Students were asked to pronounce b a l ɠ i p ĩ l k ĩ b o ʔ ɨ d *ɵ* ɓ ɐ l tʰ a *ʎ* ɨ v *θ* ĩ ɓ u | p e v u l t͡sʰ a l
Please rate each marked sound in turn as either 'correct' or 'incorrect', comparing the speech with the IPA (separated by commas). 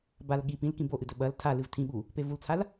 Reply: correct, incorrect, incorrect